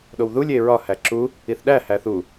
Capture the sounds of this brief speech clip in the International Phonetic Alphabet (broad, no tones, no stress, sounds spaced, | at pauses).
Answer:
ɗ o w ð u lʲ e ɹ ɒ h æ ǁ u | i θ ɗ æ h æ θ u